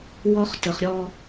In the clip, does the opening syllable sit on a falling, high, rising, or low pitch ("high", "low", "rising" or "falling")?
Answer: high